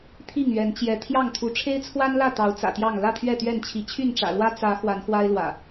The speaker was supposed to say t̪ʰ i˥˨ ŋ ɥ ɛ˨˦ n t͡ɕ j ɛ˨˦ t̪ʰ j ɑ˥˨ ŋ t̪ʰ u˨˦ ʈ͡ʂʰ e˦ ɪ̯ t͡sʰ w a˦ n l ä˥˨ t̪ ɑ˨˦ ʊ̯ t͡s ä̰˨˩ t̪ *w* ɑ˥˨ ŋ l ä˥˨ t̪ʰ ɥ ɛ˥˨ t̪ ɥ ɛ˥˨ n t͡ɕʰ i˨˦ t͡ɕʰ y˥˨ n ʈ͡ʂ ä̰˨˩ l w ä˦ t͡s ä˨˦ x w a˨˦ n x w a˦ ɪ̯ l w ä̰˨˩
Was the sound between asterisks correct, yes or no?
no